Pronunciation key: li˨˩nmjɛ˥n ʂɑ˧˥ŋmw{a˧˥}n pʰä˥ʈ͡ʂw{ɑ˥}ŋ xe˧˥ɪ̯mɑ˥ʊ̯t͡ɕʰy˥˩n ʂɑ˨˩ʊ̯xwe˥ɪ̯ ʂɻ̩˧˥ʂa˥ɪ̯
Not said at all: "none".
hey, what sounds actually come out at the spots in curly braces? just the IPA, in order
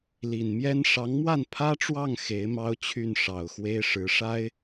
a˥˩, ɑ˥˩

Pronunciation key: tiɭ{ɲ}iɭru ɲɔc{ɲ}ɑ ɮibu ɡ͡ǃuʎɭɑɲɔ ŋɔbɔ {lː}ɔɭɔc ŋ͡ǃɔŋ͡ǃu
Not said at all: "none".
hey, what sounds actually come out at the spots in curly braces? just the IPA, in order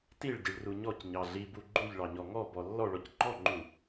ɟ, ɲ, lː

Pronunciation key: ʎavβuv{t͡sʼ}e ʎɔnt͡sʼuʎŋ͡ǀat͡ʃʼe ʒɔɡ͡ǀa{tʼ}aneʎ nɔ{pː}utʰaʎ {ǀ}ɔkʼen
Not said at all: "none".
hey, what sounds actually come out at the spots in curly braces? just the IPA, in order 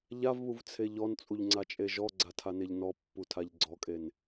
t͡sʰ, tʰ, pː, ɡ͡ǀ

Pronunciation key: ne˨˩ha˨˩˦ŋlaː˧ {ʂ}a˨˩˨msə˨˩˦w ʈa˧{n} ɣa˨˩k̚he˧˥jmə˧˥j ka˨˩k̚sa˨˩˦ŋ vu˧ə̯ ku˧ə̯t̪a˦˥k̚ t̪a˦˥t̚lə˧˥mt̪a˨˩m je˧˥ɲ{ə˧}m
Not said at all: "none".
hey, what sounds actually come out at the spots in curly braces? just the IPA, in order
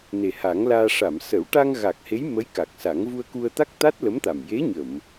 ʂ, ŋ, ə˨˩˨

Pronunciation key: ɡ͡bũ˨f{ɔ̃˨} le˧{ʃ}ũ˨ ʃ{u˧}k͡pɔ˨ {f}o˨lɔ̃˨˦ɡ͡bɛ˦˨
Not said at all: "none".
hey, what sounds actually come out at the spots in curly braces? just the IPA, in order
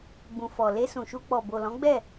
ɔ˨, s, u˧, b

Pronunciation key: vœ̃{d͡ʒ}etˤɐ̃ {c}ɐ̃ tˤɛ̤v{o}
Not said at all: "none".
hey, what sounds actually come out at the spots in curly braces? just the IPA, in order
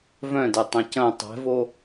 d, c, o

